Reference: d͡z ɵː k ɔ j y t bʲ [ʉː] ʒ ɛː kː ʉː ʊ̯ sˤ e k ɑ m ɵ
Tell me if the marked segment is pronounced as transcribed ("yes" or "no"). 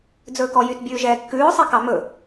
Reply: yes